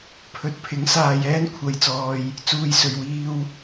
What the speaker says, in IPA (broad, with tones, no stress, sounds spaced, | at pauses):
pʰ ɵ˨˥ t̚ pʰ ɪ˨˥ ŋ s aː˧ j ɛː˥ n kʷʰ ɐ˧ j t͡s ɔː˧ j | t͡s uː˨ j s ɵ˨ ɥ w iː˧ w